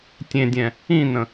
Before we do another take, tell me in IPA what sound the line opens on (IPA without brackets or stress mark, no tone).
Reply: tʲ